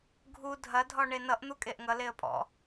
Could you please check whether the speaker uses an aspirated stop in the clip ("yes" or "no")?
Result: no